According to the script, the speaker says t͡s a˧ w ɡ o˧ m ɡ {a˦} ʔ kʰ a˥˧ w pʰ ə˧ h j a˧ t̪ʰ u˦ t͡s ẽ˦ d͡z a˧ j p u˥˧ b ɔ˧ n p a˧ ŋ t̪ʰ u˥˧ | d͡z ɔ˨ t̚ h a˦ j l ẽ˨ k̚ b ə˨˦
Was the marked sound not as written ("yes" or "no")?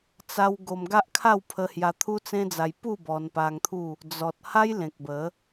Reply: no